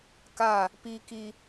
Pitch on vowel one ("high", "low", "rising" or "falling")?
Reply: falling